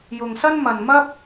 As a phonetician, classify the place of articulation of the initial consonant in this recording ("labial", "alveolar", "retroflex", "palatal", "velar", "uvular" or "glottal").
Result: palatal